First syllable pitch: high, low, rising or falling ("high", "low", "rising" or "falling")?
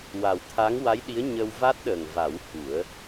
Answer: low